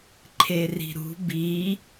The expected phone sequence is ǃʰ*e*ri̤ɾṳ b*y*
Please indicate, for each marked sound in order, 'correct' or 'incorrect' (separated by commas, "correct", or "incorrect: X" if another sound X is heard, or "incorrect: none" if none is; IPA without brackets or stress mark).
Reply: correct, incorrect: i